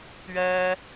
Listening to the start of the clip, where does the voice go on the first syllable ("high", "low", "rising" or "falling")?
high